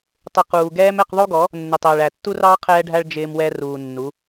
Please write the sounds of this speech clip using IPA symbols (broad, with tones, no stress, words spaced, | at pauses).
tˤɪ˨ quː˨ɡɛː˦m ɛ˦˨qðˤu˦ɡɔ˨˦ | nːɪ˨tˤɪː˨ɭæ˨tːu˦r ɑ˦ qʰɛː˦ɖʱæ˦ɭ d͡ʒɪː˦mwɛ˦ ruː˨nːu˨˦